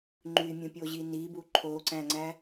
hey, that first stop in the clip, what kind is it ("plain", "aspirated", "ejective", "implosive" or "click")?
click